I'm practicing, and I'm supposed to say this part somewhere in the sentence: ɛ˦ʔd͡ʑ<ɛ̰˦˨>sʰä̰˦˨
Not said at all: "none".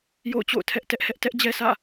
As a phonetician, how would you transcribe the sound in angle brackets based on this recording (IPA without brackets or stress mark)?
ɛ˦